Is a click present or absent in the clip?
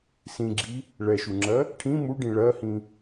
present